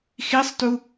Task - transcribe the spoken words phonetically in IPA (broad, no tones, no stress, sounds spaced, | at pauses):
x i sˤ t u